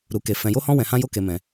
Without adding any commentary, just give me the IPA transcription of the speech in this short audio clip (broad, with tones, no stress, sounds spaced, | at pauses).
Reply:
ɾ u˧ k e˧ f ɛ̃˧ j o˦ h ɔ̃˦ w ɛ̃˧ h ã˦ j o˦ k e˧ m ɛ̃˧